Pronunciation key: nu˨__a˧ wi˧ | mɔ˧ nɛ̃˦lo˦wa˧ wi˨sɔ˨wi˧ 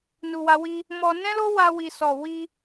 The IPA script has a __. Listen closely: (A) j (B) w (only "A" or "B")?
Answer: B